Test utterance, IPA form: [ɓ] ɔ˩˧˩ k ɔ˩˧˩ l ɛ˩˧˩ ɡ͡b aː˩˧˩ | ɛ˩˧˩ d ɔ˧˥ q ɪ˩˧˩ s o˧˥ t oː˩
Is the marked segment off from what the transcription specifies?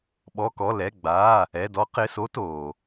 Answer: no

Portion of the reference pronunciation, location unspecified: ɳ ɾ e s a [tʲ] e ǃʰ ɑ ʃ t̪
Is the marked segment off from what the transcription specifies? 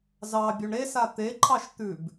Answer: yes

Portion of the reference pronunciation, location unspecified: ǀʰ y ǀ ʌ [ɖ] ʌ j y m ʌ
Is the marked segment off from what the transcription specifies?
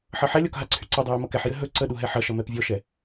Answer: yes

